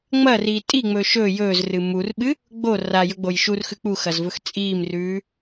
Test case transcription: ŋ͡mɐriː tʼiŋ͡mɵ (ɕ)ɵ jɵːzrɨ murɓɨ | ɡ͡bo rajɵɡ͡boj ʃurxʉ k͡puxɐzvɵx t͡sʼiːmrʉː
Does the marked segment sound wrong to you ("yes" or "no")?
yes